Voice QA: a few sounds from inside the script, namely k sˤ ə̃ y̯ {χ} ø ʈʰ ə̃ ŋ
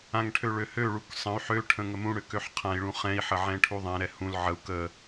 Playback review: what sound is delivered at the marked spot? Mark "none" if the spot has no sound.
ħ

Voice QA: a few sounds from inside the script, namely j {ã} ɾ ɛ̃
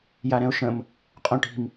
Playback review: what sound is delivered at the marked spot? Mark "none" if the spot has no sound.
a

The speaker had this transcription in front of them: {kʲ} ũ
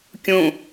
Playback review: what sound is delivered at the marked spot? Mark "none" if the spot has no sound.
kʲ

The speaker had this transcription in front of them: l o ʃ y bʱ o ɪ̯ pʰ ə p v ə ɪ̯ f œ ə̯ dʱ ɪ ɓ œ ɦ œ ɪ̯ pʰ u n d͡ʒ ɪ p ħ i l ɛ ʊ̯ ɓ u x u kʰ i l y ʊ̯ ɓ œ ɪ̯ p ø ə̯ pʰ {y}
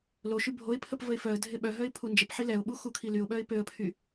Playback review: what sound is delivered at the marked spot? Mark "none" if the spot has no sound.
y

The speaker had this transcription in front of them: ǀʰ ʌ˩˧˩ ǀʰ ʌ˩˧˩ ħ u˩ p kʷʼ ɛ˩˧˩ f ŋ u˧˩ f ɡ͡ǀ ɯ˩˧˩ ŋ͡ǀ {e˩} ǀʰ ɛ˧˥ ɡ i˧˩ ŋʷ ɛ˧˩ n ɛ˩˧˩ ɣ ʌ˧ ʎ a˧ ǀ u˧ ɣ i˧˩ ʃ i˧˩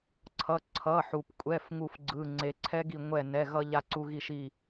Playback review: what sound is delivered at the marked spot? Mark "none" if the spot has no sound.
e˩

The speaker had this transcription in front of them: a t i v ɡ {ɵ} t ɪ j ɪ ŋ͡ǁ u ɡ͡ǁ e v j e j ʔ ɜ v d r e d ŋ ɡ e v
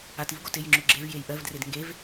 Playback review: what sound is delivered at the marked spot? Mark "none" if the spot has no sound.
o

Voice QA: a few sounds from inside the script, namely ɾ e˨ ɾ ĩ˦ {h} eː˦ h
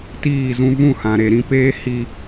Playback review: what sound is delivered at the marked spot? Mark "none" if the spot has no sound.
p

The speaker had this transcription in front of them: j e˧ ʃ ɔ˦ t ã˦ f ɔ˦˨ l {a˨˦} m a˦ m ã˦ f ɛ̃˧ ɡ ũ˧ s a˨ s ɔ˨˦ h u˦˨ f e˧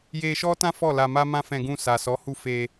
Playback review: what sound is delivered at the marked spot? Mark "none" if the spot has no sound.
a˧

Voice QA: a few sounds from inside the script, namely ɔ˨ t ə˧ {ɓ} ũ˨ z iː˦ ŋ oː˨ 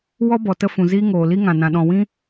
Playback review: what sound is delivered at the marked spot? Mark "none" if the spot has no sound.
f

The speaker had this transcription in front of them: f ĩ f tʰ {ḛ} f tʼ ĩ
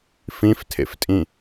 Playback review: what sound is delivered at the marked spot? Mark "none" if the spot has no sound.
ḛ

